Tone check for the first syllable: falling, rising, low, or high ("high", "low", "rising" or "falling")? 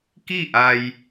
falling